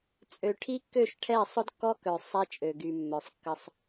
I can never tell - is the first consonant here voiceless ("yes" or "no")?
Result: yes